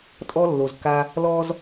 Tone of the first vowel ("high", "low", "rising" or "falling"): high